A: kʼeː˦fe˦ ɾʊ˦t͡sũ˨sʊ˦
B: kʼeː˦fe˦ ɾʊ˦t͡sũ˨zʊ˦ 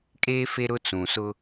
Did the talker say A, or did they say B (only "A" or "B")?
A